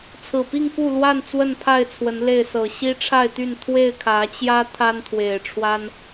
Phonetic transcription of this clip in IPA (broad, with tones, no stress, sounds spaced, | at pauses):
t͡sʰ ɹ̩˨˩ p i˥˨ ŋ k u˥˨ l w a˥˨ n t͡s w ə˥˨ n pʰ a˥˨ ɪ̯ t͡sʰ w ə˨˦ n l e˥˨ ɪ̯ s ɤ˨˩ ɕ i˦ ʈ͡ʂʰ a˥˨ ɪ̯ t̪ y˥˨ n t̪ʰ w e˥˨ ɪ̯ kʰ ä˨˦ t͡ɕ j ä˦ t̪ʰ a˦ n t̪ʰ w e˨˩ ɪ̯ ʈ͡ʂʰ w a˦ n